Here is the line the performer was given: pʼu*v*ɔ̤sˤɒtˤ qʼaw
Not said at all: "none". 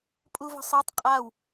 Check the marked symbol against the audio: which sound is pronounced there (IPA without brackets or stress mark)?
v